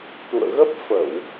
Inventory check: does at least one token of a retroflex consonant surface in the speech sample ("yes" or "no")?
no